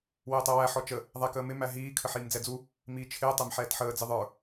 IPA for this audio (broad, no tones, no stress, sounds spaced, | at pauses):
w ɪː tˤ ɛ w æ ħ ɔ t͡ʃ ə | ðˤ æ k əː m ɪ m æ ɦ iː kʰ ə ħ iː m d͡z ɛ d͡z u | m iː t͡ʃʰ ɪː tˤ ɛ m ħ ɛː t ħ əː d͡z ɪ ðˤ ə˞